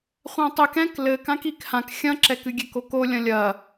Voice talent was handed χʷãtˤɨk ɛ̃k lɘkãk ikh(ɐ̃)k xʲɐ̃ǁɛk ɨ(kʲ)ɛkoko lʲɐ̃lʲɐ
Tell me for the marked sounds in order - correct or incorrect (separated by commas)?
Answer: incorrect, incorrect